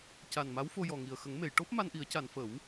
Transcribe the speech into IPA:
c a˨˩ n m a˧˥ w f o˧ j ɔ˨˩ ŋ i˨˩ ə̯ x ə˨˩˦ ŋ m e˨˩˨ j ʈ o˦˥ p̚ m a˧ n ʔ i˨˩˦ ə̯ c a˨˩˨ n f ə˨˩˦ w

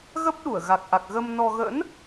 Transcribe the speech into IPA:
ɣ ə˦˥ p̚ ɗ u˧˩ ə̯ ɣ a˨˩ k̚ ʔ a˨˩ k̚ ɣ ə˧ m n ɔ˧ ɣ ə̰˧˥ n

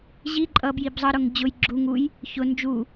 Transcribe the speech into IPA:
ʑ i ǃʼ ʌ b j i b zˤ ʌ ɾ ʊ ŋ d͡ʑ ʊ j ɡ͡ǁ u ŋ u j | ç ʊ n d͡ʒ u

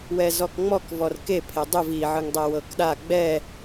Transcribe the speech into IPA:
w ɛ z ɔ k ŋ͡m ɔ k v ɔ r k e pʰ e dˤ u v i ʕ ɯ ŋ dˤ ɛ w ɤ k ɗ a ɡ͡b ɛ

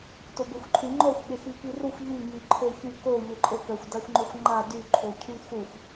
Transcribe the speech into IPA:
t o b e xʷ ǃʰ y ŋ͡ǃ ɔ xʷ ɠ e x i k i r u xʷ ʎ i ŋ i ǃʰ ø ç y k o ʎ e ǃʼ o k œ xʷ d a xʷ ŋ͡ǃ o xʷ ŋ͡ǃ a d y ǃʰ o cʰ y x u xʷ

